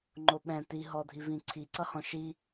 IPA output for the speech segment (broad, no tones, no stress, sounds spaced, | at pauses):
ŋ͡ǃ o ɓ ɛ̃ t i ɦ ɔ dʱ i v ĩ ǀʰ i ǀ ʌ h ɔ̃ ʃ i